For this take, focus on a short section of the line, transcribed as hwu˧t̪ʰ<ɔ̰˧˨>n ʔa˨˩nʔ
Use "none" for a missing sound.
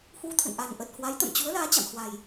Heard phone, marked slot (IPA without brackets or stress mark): ə̰˧˨